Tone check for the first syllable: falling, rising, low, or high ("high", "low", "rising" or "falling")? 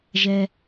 high